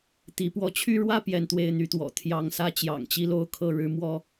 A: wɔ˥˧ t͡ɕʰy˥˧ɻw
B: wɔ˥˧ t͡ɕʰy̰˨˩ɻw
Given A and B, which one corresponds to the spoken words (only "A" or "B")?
A